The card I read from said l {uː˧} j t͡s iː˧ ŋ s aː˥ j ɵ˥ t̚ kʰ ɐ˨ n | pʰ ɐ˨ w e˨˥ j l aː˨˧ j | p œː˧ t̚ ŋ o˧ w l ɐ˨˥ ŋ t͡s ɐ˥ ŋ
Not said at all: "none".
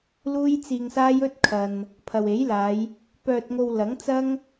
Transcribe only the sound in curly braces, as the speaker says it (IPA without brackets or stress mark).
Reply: uː˥